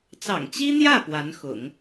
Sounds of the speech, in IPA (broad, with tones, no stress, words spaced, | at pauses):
t͡sɑ̰˨˩ŋt͡ɕi˥n̪jä˥˩ pwa˧˥nxʊ̰˨˩˦ŋ